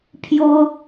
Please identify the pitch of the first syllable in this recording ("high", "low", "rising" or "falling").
high